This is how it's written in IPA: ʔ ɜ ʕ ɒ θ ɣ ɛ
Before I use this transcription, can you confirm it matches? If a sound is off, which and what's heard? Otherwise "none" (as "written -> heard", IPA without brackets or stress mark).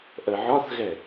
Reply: none